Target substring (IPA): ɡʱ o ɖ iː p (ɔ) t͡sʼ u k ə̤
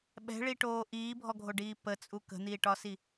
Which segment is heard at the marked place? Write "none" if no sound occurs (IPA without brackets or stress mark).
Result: ə